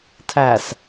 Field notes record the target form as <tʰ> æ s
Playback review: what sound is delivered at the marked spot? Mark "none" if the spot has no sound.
tʰ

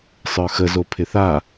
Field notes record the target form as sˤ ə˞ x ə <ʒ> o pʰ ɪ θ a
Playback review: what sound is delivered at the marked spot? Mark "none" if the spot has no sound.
z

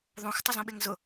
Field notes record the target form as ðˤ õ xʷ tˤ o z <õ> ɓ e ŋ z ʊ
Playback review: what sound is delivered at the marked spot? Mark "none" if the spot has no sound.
õ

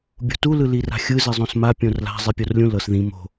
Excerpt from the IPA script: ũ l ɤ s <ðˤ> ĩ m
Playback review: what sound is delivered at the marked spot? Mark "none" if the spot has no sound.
ð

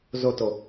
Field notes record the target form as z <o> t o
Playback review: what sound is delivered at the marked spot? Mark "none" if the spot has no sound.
o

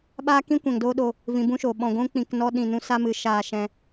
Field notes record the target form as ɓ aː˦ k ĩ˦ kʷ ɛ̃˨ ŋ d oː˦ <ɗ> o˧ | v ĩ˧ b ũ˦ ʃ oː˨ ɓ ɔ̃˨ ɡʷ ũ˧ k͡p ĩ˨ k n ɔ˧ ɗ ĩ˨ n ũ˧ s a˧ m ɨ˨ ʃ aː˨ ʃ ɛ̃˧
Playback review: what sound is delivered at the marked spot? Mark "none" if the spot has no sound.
ɗ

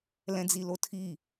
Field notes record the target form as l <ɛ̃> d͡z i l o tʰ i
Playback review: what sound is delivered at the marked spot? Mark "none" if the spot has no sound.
ɛ̃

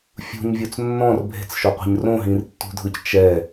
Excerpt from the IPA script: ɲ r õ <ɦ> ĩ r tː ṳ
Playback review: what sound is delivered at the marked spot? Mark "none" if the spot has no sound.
ɦ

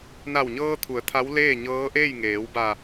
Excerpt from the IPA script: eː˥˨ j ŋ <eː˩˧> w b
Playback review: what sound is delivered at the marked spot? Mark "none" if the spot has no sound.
eː˩˧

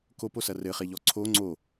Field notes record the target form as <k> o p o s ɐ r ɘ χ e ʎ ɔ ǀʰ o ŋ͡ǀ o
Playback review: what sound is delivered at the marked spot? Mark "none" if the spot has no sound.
k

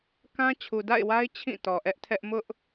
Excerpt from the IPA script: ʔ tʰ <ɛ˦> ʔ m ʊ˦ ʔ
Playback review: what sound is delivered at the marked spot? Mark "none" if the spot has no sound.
ɛ˦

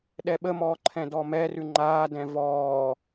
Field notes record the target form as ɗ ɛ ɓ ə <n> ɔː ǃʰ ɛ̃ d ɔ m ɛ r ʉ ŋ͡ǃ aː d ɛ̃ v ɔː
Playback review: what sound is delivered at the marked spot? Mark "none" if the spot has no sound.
m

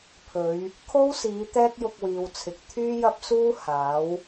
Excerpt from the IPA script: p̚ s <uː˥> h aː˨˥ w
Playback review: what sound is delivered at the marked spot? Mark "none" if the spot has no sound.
uː˥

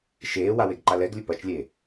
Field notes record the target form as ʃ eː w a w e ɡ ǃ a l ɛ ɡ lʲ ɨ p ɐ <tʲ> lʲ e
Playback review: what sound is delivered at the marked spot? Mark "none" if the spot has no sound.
t͡ʃ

